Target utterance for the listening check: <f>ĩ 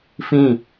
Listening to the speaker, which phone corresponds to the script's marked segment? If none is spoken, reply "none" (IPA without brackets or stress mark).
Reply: f